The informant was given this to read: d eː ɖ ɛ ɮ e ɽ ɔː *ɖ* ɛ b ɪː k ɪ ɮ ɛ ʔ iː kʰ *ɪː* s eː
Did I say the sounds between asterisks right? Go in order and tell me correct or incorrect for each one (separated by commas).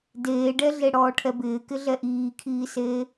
incorrect, incorrect